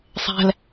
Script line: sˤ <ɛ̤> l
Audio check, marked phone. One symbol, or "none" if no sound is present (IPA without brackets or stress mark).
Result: ɛ̤